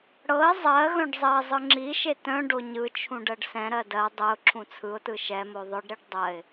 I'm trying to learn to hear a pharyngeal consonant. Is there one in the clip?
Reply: no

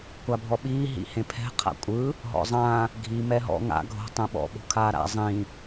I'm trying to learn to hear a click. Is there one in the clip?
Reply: no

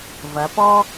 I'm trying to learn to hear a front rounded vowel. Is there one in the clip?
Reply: no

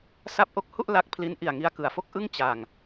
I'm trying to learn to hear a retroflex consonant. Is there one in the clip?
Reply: no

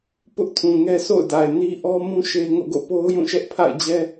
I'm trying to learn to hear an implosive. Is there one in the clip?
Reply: no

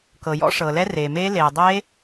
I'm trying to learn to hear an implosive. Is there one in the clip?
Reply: no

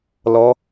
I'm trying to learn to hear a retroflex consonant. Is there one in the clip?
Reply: no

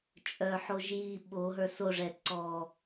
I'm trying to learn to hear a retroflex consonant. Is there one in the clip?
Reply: yes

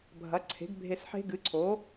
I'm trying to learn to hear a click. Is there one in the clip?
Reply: yes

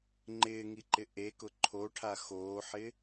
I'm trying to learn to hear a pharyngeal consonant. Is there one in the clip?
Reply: yes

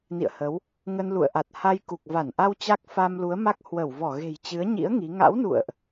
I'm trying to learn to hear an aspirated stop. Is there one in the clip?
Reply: no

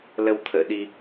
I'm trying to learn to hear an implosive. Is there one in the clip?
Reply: yes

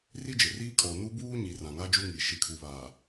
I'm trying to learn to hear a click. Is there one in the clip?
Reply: no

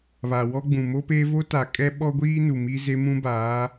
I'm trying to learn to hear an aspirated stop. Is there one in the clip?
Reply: no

